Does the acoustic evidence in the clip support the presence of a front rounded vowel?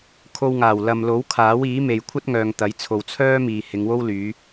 yes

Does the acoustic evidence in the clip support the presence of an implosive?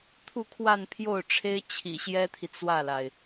no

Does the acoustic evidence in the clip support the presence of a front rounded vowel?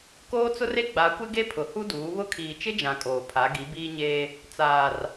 no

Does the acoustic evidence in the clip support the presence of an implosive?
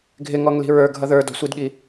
yes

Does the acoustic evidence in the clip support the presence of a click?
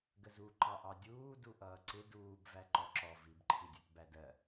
yes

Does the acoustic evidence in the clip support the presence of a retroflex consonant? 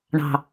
yes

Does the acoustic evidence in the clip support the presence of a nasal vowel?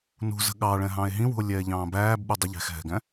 yes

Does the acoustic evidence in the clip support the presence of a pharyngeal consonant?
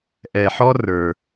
yes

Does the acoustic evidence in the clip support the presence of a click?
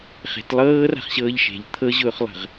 no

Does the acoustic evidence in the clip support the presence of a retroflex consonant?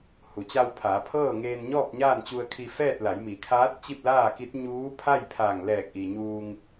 no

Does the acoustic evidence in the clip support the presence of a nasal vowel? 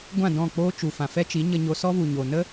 yes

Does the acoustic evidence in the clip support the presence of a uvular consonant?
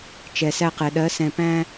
yes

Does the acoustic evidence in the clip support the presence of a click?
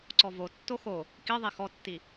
yes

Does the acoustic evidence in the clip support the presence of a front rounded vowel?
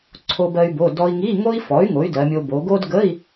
yes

